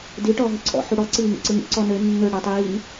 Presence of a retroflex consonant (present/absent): present